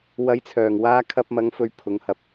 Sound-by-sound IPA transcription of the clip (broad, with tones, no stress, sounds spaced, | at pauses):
w ɐ˨˧ j t͡sʰ œː˨˩ ŋ w aː˧ kʰ ɐ˧ p̚ m ɐ˨˧ ŋ f ɵ˨˧ ɥ pʰ ʊ˨ ŋ h ɐ˧ p̚